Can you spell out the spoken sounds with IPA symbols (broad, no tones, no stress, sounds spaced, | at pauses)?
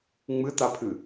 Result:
ŋ͡m ɨ t a pʰ ɨ